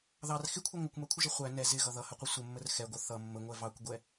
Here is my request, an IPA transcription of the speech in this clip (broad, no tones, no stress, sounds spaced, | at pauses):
ð ɑ r x ɪ kʷʰ ʌ ŋʷ ʌ kʷ m ɜ kʷʰ ɪ ʒ ʌ χʷ æ n ɛ z ɪ ɣ ʌ ð ʌ h ə qʷ ə sʷ ə mː ə r x ɛ ɡʷ ʌ θ ʌ mː ə ŋʷ ɛ v ɑ kʷ ɡʷ ɛ